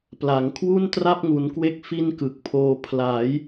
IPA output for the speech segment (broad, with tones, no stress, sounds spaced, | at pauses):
p l a˩˦ ŋ kʰ w u˥˩ n t r a˥˩ p̚ ŋ u˩˦ n k w e˦˥ k̚ f i˥˩ n k ɯ˨˩ k̚ pʰ oː˧ pʰ l a˩˦ j